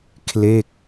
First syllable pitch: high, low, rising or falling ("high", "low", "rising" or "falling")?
falling